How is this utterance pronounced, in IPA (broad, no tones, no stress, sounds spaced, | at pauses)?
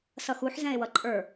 s ʌ x u ħ z ɛ̃ e̯ w ʌ ǃʼ ə˞